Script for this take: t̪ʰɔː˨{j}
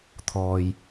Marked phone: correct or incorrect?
correct